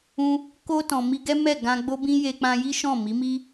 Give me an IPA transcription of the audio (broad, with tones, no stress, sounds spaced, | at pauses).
ũ˧ | k o˧ t ɔ̃˨ m i˧ ɡ ɛ˦ m ɛ˦˨ ɡ ã˧ ɡ͡b o˦ b ĩ˦ j e˧ k͡p ã˧ j i˦ ʃ ɔ̃˦˨ m i˨˦ m i˦